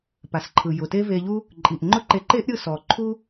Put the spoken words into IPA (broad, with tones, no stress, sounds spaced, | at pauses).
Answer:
p a˩ s ǃʰ ɯ˩ j ʊ˩ t e˥ v e˧ ʎ u˥ | ǃʼ i˩ ʔ ŋ͡ǃ ʊ˥ ǃ e˧ ǃ e˥ ʔ ɾʲ ɯ˧ s ɔ˩ ǃʰ u˥